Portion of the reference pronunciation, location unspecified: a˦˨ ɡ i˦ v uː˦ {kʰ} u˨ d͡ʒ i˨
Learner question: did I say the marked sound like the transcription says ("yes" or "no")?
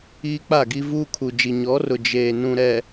yes